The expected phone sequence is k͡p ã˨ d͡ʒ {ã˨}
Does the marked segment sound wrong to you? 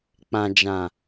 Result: no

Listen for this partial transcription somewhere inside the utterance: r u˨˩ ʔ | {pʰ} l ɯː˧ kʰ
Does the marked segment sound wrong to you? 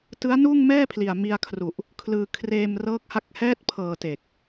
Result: yes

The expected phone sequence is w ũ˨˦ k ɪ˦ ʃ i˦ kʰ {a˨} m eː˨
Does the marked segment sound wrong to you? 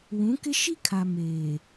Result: no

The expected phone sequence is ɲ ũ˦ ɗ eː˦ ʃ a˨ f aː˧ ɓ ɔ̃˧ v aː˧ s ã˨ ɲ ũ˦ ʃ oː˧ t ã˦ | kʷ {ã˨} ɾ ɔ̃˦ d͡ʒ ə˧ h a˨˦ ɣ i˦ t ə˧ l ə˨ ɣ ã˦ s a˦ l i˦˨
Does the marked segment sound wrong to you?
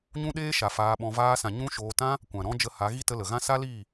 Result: no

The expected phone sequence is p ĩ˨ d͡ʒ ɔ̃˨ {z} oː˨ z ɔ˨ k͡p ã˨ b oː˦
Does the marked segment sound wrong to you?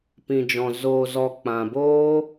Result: no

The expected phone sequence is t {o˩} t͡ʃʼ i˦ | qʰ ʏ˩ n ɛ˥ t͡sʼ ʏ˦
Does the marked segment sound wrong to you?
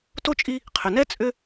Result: yes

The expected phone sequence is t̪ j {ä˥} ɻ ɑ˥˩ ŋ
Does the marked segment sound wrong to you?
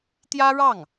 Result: no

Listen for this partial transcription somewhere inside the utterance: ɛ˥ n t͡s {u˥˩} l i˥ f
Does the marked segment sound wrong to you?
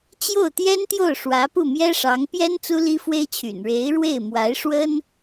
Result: yes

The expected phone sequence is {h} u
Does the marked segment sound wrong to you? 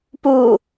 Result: yes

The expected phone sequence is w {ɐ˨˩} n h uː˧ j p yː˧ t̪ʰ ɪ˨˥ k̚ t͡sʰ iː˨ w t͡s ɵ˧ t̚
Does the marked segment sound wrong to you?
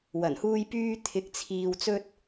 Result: no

